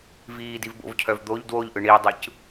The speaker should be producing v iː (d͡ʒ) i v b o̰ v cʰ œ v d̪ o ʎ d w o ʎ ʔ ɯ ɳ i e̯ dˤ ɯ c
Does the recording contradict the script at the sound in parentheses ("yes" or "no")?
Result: yes